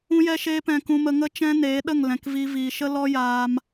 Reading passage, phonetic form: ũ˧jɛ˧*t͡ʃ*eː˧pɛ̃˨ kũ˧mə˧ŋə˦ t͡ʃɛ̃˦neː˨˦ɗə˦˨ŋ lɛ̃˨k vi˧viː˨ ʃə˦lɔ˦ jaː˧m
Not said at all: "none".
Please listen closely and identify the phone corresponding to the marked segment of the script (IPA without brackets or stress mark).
ʃ